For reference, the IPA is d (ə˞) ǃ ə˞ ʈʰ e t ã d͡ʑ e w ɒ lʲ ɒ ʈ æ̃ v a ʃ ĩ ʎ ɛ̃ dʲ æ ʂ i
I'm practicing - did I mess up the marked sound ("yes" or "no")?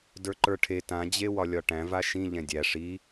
no